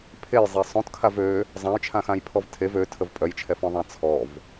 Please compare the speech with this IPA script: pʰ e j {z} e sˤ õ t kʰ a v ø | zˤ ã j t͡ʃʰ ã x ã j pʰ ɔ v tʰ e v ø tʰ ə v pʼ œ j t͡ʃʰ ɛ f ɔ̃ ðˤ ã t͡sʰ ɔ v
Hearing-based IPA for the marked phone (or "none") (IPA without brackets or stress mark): zˤ